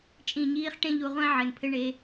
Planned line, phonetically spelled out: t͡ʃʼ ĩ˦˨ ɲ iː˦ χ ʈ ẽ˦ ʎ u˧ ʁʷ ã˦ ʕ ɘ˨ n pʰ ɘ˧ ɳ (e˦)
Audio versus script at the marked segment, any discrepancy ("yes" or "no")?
yes